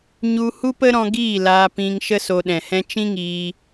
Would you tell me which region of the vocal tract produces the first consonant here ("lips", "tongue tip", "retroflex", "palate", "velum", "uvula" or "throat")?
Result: palate